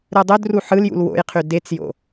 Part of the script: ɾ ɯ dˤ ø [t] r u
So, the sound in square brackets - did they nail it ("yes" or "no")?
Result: no